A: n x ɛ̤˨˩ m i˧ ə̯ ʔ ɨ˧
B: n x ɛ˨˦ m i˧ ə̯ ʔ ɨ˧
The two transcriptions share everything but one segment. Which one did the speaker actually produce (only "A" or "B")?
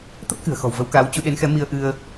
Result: B